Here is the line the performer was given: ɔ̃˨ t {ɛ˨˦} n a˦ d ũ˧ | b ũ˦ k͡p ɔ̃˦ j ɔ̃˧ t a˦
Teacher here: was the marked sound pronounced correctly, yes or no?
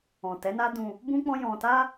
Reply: yes